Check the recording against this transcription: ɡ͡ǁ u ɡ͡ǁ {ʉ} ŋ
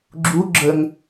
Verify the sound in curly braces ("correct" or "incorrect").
incorrect